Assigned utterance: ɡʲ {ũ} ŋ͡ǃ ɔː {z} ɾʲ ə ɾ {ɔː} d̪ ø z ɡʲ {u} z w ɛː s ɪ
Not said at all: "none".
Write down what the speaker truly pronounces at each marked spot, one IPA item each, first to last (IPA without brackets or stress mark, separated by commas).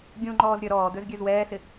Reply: ũ, z, ɔː, ø